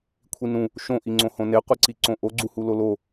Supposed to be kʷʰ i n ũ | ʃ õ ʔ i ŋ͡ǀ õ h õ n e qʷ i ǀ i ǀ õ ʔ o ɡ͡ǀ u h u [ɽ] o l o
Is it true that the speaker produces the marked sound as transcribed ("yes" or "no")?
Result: no